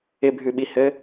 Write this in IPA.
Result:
ɪ bʱ ʉ ɓ i h ɘ

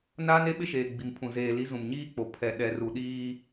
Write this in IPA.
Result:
n aː˦ n e˦ ɓ ɪ˦ ʃ eː˨ ɡ͡b i˨ m pʰ ũ˨ z eː˨ l i˨˦ z ũ˨ m ɲ iː˦ k͡p o˨ pʰ ɛ˨ ɗ ɛ˨ r u˨ ɗ iː˦

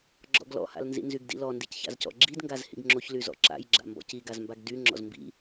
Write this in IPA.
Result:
ɡ͡ǁ ɔ̰ ɡ l ɔ̰ h a̰ l n z ḭ n z y ɡ d ḭ l ɔ n d i c ç a̰ z c ɔ̰ ɡ͡ǁ i d ŋ ɡ a z h ḭ ɡ ŋ͡ǁ o ç l y z ɔ̰ ǁ a̰ j ɡ͡ǁ a̰ m b ɔ̰ c i ɡ a z m b a ɡ d y ŋ͡ǁ ɔ̰ z m b ḭ

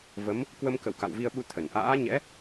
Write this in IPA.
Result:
v ə˨˦ m | k w ə˧ m k ə̰˧˨ w k a̰˧˨ w v i˧ ə̯ ɓ u˧ t̪ʰ ə˧˩ n ʔ a̰ː˧˥ ɲ ɛ̰˧˥

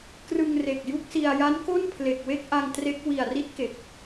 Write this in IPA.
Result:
k r ɯ˧ ŋ r e˨˩ k̚ j u˥˩ k̚ s i˧ a̯ j a˦˥ n k o˥˩ n pʰ l e˨˩ k̚ w e˥˩ k̚ ʔ a˧ ŋ t r e˦˥ k̚ w i˨˩ a̯ r i˦˥ t̚ k e˨˩ k̚

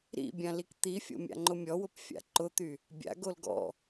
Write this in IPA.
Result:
ɾ ḭ bʲ ã l i k t̪ i fʲ o̰ mʲ a̰ ŋ͡ǃ ʊ mʲ ɔ w ʊ p fʲ a̰ ǃ ʊ t̪ y | bʲ a̰ ɡ o l ɡ ɔ̰

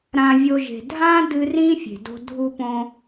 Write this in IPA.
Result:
ɾ ã˧ vʲ o˧ ʒ e̤˨ dʱ ã˦ d ɨ˧ r ĩ˦ fʲ e̤˨ d o̤˧ dʱ u˧ p õ˧

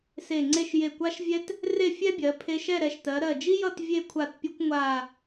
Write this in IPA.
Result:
s e˧˩ ŋ͡ǀ e˥˧ ʃ j e˧˩ kʷ a˥ ʃ vʲ ɛ˥ t | r e˥˧ fʲ ɛ˥ bʲ ɜ˩˧ pʰ e˧ ʃ ɛ˥˧ ɾ ɛ˧˩ ʃ t ɜ˩˧ ɾ ɜ˧˩ d͡ʒ i˥ j ʌ˥˧ t vʲ e˥˧ kʷʰ a˧˩ t pʲ o˥ kʷ ŋʷ a˧˩

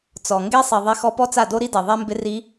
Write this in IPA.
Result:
t͡s ɔ˨ ŋ ɡ e˦ sˤ i˨ ðˤ e˧ x ɔ˧ p ɔ˦ t͡s a˦˨ d o˦ ɾ i˦ d e˨ ðˤ e˦ m b ɪ˦ r i˦

